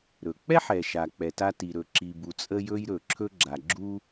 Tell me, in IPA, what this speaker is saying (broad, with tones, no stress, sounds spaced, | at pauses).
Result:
ɾ ɵ˩ k͡p ɛ˥ ħ ɛ˩ ʃ a˩ k͡p ɛ˩ t a˥ t i˩ ɾ ɵ˩ ǁ i˩ b u˩ t͡sʼ ə˥ j ɵ˥ j ɾ ɵ˩ ǁʰ ɵ˥ ɡ͡ǁ a˩ ɡ͡ǁ u˥